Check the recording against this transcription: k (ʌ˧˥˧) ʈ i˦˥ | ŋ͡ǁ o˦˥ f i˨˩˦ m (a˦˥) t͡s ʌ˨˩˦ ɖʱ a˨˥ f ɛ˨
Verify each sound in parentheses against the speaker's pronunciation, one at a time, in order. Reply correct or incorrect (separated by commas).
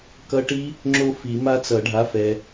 incorrect, correct